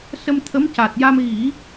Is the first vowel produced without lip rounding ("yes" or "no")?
yes